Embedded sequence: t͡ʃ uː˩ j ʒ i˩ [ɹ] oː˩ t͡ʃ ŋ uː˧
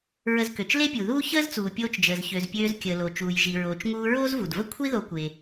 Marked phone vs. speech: correct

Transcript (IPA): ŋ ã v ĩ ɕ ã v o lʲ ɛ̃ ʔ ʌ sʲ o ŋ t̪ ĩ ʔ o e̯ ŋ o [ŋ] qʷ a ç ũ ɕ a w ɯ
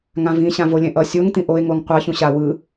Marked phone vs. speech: correct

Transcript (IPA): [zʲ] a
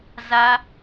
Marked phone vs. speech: incorrect: z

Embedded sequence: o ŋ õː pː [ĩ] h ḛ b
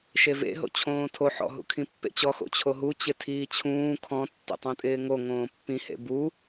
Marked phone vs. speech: correct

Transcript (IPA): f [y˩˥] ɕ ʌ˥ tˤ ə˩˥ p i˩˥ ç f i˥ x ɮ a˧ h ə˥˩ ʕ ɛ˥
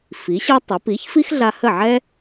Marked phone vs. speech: incorrect: i˩˥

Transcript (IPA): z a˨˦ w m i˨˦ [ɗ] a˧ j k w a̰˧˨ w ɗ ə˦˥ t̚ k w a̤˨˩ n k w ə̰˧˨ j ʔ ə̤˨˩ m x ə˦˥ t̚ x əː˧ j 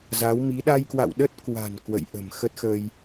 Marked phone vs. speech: correct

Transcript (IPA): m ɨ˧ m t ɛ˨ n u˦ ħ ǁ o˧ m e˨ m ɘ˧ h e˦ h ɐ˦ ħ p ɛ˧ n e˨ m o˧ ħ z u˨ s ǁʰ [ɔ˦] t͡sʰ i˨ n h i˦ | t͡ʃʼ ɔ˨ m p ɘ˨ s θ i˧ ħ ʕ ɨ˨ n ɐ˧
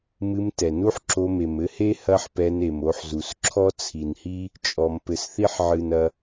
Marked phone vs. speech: correct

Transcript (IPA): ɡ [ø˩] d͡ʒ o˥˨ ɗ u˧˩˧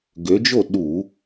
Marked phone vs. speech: incorrect: ø˨˦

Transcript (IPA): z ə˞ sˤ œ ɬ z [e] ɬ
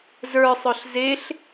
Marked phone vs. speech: correct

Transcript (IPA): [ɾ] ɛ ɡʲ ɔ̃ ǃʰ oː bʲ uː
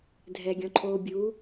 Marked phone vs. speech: incorrect: dʱ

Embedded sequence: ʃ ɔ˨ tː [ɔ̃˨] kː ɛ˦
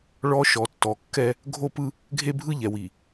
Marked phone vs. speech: incorrect: ɔ˨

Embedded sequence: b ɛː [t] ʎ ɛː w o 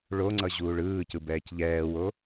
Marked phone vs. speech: incorrect: c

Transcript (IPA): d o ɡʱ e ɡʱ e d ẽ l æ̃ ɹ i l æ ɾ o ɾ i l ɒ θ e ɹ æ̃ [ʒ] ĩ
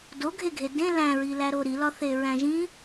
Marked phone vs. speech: correct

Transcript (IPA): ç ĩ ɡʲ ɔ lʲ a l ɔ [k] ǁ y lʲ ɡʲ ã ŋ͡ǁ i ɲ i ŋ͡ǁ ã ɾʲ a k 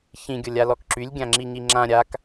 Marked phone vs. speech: correct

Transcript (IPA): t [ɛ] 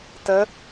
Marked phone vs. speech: incorrect: ə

